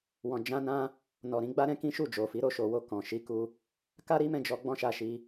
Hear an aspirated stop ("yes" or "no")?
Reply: no